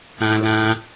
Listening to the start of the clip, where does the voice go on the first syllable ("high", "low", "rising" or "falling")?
high